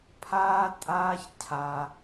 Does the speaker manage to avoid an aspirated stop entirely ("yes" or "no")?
no